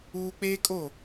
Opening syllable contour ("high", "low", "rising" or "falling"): high